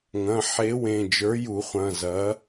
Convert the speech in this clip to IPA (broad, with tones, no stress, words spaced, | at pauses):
ŋɐ̃˩˧˩ħe˨˥wẽ˩˧˩ d͡ʒə˞˨˥ju˨˩˦χʷɐ̃˩˧˩zɐ˨˥